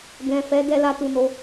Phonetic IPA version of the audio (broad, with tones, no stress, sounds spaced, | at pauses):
ɡ ɛ̃˨ f ɛ˨˦ d ɛ˧ l a˧ t u˨ n o˨˦